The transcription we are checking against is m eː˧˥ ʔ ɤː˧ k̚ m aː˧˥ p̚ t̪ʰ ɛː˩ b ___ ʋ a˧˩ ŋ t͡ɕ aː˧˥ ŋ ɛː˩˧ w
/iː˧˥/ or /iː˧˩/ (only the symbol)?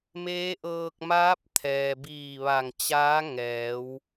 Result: iː˧˩